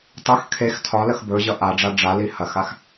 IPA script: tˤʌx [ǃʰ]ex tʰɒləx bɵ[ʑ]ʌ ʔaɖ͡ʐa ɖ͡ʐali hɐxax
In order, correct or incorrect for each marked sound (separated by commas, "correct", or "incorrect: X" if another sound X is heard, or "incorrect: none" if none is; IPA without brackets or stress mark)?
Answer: incorrect: kʰ, correct